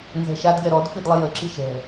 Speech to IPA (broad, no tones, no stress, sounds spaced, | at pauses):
n z ɛ̤ ʃ a d ɡ ɛ ɾ ɔ d f i d lˠ ə j ə ǁ i ʃ ɛ̤